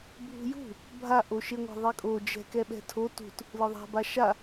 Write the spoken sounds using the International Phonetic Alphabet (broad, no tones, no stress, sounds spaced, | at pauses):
bʱ ṳ j ṳ | bʱ a ʔ o ʃ e ŋʷ ɛ̤ ðˤ e kʼ o d͡ʒ ɛ̤ k ɛ ɓ ɛ̤ tʰ o t ṳ t | l ɯ ðˤ a̤ b a ʃ a